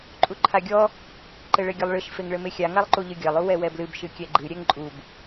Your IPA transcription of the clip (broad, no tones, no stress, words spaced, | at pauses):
ǃʼuǃʰaɡʲɔ | ǃɘɭɘɡʲɘlˠɭɨʃ feŋɭɘmexʲa ŋalˠǃuʎɨɡʲɐlˠ uwɛwɛblɨb ʃɨkʲɛɡ͡ǃɨ ɾʲɛŋǃʼub